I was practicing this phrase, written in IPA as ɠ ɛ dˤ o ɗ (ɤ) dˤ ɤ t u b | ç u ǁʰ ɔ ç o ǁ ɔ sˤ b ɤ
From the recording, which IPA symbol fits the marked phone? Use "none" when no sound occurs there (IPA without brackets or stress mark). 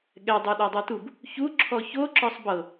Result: ɔ